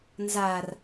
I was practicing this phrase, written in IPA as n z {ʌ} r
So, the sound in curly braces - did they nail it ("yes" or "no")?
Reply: no